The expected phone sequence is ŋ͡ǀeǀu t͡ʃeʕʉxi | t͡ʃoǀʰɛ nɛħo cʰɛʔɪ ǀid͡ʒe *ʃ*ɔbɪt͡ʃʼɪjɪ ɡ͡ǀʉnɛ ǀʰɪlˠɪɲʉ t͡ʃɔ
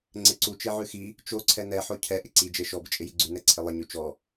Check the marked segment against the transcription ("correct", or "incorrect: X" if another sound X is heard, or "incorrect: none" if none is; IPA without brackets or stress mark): correct